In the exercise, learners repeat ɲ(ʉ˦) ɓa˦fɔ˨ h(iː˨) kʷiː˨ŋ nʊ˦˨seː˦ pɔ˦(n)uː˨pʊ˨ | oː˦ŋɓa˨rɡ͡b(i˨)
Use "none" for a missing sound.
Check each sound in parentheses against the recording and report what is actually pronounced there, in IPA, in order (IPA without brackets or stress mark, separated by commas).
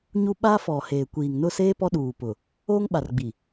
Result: u˦, eː˨, ɗ, i˨